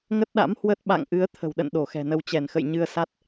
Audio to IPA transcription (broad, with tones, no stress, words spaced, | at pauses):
ŋə˦˥t̚ɗa̰˧˥mhwə˦˥t̚ ɓa̰˧˨ŋʔɨ˨˦ə̯ t̪ʰə̤˨˩wɗə̰˧˨n ɗo˧˩xɛ̤˨˩nə˧w t͡ɕɛ˧˩nxə̰˧˨jɲɨ˧ə̯sa˦˥t̚